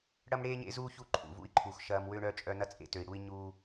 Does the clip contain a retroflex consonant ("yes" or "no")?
yes